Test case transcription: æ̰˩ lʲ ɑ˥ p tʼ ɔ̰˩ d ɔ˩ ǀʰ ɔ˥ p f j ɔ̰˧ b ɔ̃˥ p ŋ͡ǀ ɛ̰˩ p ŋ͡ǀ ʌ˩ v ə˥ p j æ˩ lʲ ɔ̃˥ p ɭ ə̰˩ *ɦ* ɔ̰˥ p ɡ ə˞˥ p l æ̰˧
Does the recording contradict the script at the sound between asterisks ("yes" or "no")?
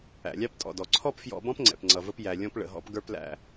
no